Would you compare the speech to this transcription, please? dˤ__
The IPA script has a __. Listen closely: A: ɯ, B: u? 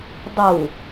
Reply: B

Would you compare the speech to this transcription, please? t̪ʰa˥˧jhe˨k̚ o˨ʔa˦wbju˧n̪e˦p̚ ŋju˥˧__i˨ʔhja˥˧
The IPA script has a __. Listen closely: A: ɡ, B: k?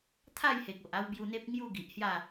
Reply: A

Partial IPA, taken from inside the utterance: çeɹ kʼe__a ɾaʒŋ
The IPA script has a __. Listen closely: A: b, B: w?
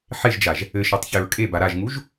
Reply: A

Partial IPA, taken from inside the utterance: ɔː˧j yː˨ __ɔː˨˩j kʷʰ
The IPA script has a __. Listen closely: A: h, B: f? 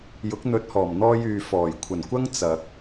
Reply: B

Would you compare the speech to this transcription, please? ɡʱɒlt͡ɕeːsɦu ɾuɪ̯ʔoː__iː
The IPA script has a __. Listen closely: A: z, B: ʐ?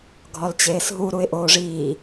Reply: B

